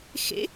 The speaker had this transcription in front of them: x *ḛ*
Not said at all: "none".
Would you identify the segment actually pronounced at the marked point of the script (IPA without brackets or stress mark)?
ḛ